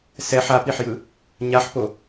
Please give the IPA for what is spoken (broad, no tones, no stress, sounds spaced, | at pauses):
s ɛ ħ a p i ħ j ɯ | ɲ a ħ p o